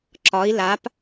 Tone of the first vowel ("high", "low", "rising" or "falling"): rising